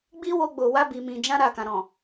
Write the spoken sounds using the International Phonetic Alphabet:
ɡ͡b i˦ w o˧ ɡ͡b o˨ w a˧ b i˨ m ĩ˨ d͡ʒ ã˧ ɾ a˨ k ã˨ ɾ ɔ̃˨

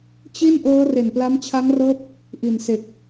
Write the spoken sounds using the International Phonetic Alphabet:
t͡ɕ i˥˩ n ʔ ɤː˦˥ r e˨˩ n p l a˦˥ m t͡ɕʰ a˦˥ ŋ r ɤː˦˥ p̚ | ʔ i˨˩ n s e˨˩ k̚

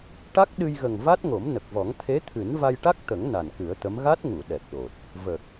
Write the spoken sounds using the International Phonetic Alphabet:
ʈ a˦˥ k̚ ɗ ɨ˧ j ɣ ə˨˩ ŋ v a˦˥ t̚ ŋ o˨˩˦ m n ə˨˩ k̚ v ɔ˨˩˦ ŋ t̪ʰ e˧˥ t̪ʰ ɨ˨˩˦ n v a˧ j ʈ a˦˥ k̚ t̪ ə˨˩˦ ŋ n a˨˩ n k ɨ˨˩˦ ə̯ t̪ ə˧˥ m ɣ a˦˥ t̚ ŋ u˨˩˨ ɗ ɛ˨˩ p̚ ɗ o˨˩ t̚ | v ə˨˩ k̚

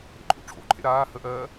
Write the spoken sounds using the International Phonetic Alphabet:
ɾ ḛ ǃʼ ṵ ʈ͡ʂʰ o̰ ǃʰ ḛ ɾ aː h ə ʔ ɜː

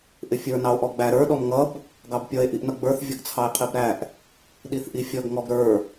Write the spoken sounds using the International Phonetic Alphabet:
ʔ ɪ fʲ ə˞ n ɑ o̯ ʔ ɔ ɡ͡b æ ɾ ə˞ ɗ ɔ m ŋ ʌ b | ɡ ɑ b pʲ ʌ e̯ ʔ i ʔ n ʌ ɡ͡b ə˞ θ vʲ ʌ ɡ t͡sʰ ɑ e̯ qʰ i b ɾ æ ʔ | ɗ i θ ʔ i fʲ ʌ ɡ ŋ ɔ ɡ ɾ ə˞

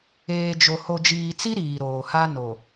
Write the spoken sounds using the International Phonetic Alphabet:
eː˨ d͡ʒ o˨ h o˨ d͡ʒ iː˨ t͡s i˦ ɾ iː˨ ɾ oː˨ h a˦ n o˨

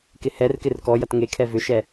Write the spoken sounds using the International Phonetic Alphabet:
k ɪ h ɛ r k ɪ r k ɔ j ɐ t ŋ e kʰ ɛ v ʏ ʃ ɛ

